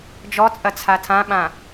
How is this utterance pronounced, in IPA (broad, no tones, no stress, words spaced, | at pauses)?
d͡ʒɔt͡sʼɐt͡sʰa tʰãɓã